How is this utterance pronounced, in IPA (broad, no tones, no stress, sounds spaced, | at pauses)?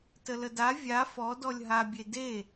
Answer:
t ə l ə d a vʲ a f ɔ d ɔ lʲ ɦ a bʲ e d e